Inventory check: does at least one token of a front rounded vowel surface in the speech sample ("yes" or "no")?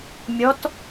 no